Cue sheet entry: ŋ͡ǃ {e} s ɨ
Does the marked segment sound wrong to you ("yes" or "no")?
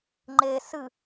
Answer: no